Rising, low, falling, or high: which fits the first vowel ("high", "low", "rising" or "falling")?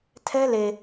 high